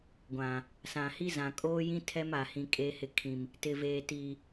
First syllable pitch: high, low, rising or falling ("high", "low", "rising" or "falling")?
low